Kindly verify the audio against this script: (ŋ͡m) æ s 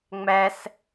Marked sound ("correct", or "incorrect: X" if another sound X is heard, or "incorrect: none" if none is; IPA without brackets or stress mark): correct